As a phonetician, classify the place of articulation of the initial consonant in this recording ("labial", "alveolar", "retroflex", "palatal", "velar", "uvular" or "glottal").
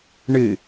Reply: retroflex